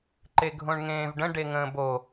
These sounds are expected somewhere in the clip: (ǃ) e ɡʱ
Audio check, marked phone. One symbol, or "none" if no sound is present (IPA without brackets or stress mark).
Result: ǃ